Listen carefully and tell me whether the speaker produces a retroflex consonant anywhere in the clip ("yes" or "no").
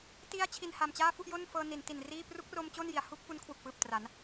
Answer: no